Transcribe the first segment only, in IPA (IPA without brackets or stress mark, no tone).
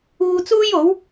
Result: uː